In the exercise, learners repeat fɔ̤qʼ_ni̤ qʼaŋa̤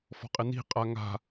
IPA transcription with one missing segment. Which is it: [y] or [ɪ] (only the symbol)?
ɪ